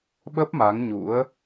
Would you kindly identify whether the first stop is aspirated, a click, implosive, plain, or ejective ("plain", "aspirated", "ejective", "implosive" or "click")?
implosive